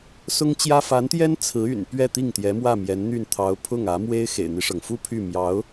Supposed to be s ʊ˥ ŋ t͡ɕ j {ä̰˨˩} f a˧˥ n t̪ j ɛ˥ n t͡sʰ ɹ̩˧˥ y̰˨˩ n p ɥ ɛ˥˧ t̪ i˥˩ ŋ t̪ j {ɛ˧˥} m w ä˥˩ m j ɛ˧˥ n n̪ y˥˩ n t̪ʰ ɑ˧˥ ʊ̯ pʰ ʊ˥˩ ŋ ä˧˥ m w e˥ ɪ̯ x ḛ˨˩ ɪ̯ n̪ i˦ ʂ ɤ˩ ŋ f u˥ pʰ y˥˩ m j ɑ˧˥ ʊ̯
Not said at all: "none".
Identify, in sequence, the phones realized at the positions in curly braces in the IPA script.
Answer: ä˥, ɛ˧˥

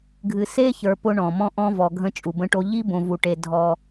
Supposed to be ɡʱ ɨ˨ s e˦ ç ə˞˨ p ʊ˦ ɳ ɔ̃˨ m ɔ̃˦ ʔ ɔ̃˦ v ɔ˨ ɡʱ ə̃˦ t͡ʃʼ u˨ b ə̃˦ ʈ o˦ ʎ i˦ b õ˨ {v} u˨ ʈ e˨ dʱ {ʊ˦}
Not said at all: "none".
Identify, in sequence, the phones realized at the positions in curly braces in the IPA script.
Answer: v, ɔ˦

